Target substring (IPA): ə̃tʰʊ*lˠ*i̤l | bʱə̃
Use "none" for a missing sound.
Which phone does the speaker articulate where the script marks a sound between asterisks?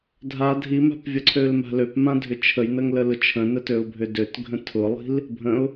lˠ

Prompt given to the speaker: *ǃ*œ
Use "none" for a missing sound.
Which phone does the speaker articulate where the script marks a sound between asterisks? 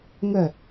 ŋ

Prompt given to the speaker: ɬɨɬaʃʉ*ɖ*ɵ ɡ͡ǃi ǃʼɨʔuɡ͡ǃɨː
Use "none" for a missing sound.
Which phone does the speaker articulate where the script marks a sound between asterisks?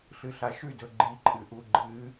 d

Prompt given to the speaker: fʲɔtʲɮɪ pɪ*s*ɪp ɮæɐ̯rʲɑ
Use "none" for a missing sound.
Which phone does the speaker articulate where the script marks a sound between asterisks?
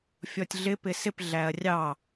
s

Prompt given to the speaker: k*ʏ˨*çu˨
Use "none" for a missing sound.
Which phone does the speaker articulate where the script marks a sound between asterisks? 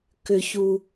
ʏ˨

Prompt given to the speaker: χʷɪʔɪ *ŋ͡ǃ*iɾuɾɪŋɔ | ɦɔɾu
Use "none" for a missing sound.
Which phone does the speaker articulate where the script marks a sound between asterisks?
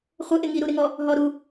ŋ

